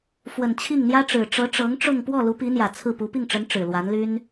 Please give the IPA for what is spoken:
f w ə˨˩ n t͡ɕʰ i˥˩ ŋ n̪ j ä˥ ʈ͡ʂ ɻ̩˨˩ ʈ͡ʂ ɤ˧˥ ʈ͡ʂ ɤ˧˥ ŋ ʈ͡ʂ ʊ˥˧ ŋ p w ɔ˥˩ l u˧˥ p i˧˥ n̪ j ä˨˩ t͡sʰ ɹ̩˥˩ p u˧˥ p i˥˩ ŋ ʈ͡ʂ ə˧˥ n ʈ͡ʂ ɻ̩˨˩ l w a˧˥ n l y˥ n

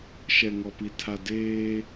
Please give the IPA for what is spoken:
ʃ ɛ˨ ŋ ɔ˨ p i˨ tʰ a˨ d eː˦

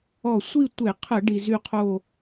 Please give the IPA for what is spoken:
ɔ˧˩ sʷ i˥˧ tʷ e˧˩˧ qʰ ə˧˩˧ ɖ i˩ z y˧˩ qʰ o˧˩

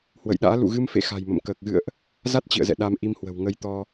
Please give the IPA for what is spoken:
h w ə̰˧˨ j ɗ a̰ː˧˥ l ṵ˧˨ ɣ ɨ˧ m f ḛ˧˨ x a̤˨˩ j m ə̰˧˨ m k əː˨˩ k̚ ɣ ɨ̰˧˨ ə̯ ʔ | z a˦˥ t̚ t͡ɕ ḭ˧˨ ə̯ z ɛ̰˧˨ ɗ a˧ m ʔ i˧ m h w ə̤˨˩ w ŋ ə˧ j t̪ ɔ˧

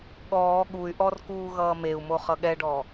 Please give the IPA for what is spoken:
ɠ ɔː ɠ u y̯ ʔ ɔ r k uː ɣ ʌː m e u̯ m o χ ʌ ɠ ɛ ɖ ɔ

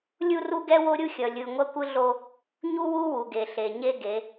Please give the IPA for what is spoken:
lʲ u˦ r u˦ ɡ ɛ˦ w o˦ ɾʲ u˦ xʲ ʌ˨ lʲ ɯ˨ ŋʷ ʌ˦ kʷ ɯ˦ ɮ o˦ | ɲ u˦ w u˦ w u˨ ɡ e˨ ɬ e˨ ɲ e˦ ɡ e˨˦

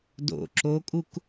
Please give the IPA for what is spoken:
d o̰ ǁ o kʼ u k

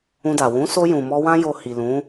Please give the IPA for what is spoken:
ũ˧ d a˨ w ũ˨˦ s o˧ j ũ˨ m ɔ˧ w ã˦ j o˧ h i˨ l ũ˨˦

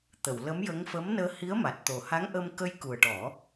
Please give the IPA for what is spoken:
t̪ ə˨˩˨ w l ə˧˥ m j ə˧˥ ŋ f ə˧˥ m n əː˧ h i˧˥ ə̯ m a˨˩ t̚ t̪ o˨˩ h a˧˥ ŋ ʔ ə˧ m k ə˧ j k u˨˩ ə̯ ʈ ɔ˨˩˦

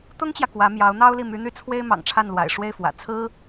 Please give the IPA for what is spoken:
t̪ ʊ˥ ŋ t͡ɕ j ä˨ k w ä˧˥ m j ɑ˧˥ ʊ̯ n̪ ɑ˥ ʊ̯ l i˥˩ m y˧˥ n̪ y˥˩ t͡sʰ w e˥ ɪ̯ m ɑ̰˨˩ ŋ ʈ͡ʂʰ a˥˩ n l w a̰˨˩ ɪ̯ ʂ w e˥˩ ɪ̯ f w ä̰˨˩ t͡sʰ ɹ̩˥

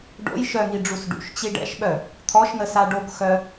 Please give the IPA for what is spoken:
ɖ o̰ j ʃ œ ŋ i ɖ͡ʐ u s ɖ ṵ ʃ t͡ɕ i ɖ ɛ̰ ʃ ɓ œ | t̪ʰ ɔ ʃ n̪ ə s a ɖ o k x œ

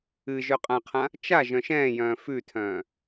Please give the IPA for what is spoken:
ɨ ʒ œ qʼ ã qʰ ã | t͡ʃ a ʒ œ̃ ʃ ɛ̃ː j œ̃ː f ʉ tʰ œ̃ː

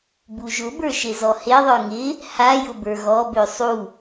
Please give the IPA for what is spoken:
b u ʒ ʊ b ə˞ ʃ e z ɔ h e ðˤ ə˞ ŋ ɪ | h a j ʊ b ə˞ ɣ ɔ b ø sˤ u

